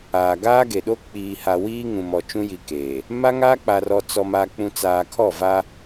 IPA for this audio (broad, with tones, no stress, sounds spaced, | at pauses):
aː˨ ɡ aː˦ ɡ e˨ ɗ o˦ k͡p iː˨ h a˨ w iː˦ ŋ ũ˨ m ɔ˨ t͡ʃ ũ˦ j i˨ k eː˨ | m a˦ ŋ aː˦ k͡p a˨ r ɔ˨ t͡s ɔ˨ m a˨ k͡p ũ˨ t͡s aː˨ kʰ ɔ˦˨ v a˦